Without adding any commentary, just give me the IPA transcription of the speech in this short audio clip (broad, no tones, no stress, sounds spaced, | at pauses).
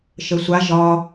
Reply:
ʃ ə sʷ a ʒ ɒ